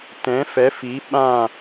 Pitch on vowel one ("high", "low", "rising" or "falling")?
rising